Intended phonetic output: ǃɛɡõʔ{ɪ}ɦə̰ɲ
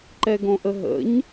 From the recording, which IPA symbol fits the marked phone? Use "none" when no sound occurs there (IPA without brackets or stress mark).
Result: ə